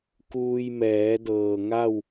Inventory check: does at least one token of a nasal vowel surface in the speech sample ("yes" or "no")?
no